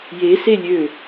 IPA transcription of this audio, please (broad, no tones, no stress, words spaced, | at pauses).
je selʲø